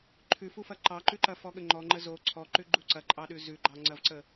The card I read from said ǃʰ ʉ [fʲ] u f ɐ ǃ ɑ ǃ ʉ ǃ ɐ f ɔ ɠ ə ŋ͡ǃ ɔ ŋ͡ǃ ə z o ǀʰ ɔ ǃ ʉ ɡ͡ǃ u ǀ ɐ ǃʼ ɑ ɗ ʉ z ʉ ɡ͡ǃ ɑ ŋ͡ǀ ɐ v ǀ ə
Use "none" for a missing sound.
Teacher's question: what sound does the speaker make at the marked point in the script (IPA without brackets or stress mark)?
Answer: f